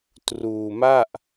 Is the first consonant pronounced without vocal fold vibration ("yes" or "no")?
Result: yes